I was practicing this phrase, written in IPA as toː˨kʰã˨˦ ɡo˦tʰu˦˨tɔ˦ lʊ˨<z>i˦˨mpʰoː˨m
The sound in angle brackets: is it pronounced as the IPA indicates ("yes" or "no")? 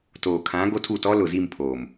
yes